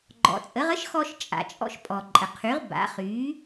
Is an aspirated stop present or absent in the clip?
present